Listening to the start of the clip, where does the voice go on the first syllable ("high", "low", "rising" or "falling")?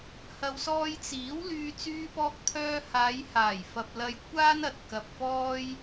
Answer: low